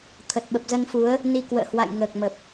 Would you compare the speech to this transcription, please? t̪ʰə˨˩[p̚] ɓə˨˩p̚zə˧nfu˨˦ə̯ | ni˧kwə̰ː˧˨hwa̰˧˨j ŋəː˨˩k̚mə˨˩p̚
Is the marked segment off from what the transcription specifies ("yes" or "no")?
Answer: yes